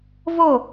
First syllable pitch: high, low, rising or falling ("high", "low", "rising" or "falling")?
falling